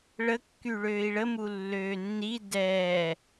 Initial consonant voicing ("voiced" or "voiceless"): voiced